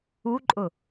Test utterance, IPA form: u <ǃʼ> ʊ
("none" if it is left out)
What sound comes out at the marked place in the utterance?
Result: ǃʼ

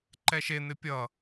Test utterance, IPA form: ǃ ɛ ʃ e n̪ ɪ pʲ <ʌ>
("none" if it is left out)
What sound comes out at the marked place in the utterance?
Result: ʌ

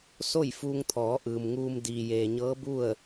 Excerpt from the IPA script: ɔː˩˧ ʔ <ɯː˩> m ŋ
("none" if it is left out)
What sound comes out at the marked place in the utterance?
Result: ɯː˩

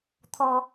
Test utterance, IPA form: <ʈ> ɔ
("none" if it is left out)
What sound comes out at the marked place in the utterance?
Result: t̪ʰ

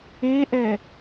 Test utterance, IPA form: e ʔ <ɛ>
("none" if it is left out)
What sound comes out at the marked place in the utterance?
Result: ɛ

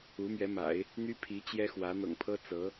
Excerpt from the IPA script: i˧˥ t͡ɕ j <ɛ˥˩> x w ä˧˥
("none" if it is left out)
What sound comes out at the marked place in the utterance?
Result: ɛ˥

